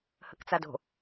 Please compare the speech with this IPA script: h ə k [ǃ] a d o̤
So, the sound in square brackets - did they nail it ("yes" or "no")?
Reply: no